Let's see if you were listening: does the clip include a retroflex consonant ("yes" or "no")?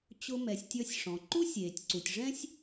yes